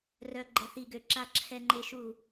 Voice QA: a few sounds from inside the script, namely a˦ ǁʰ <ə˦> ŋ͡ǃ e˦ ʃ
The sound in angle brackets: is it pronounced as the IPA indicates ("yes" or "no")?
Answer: no